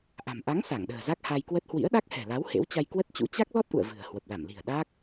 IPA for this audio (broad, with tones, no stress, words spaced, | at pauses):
ʔa̤˨˩m ʔa˨˦ŋ sa˧˩ŋɗə̤ː˨˩ za˦˥k̚ ha˧jkwə˦˥t̚ hwḭ˧˥ə̯ɗa˦˥k̚hɛ̤˨˩la˨˦w hḛ˧˥wt͡ɕa˧jkwə˦˥t̚t͡ɕṵ˧˥ t͡ɕa˦˥k̚lɔ˦˥t̚ʔṵ˧˨ə̯ vɨ̤˨˩ə̯hwə˨˩p̚ la˧˩mli̤˨˩ə̯ ɗaː˦˥k̚